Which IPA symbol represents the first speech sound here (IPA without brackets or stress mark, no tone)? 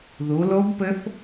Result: ð